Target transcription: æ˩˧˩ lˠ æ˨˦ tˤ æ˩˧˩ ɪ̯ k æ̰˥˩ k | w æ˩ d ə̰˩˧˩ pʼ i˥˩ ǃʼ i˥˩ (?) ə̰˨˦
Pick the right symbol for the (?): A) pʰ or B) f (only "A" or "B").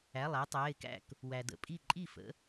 B